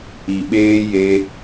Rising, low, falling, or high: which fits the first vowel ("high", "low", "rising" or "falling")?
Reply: low